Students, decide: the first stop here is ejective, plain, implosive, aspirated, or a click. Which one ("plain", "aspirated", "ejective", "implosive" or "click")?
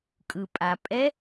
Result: ejective